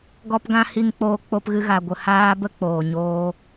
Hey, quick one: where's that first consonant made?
velum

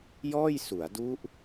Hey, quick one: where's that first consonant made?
palate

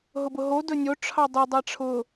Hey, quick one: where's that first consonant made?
throat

